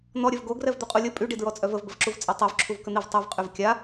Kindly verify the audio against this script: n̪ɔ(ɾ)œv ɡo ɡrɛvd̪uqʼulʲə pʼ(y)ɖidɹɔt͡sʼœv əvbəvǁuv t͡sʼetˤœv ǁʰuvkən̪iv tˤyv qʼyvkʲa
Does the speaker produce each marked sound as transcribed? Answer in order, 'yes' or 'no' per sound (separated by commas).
no, yes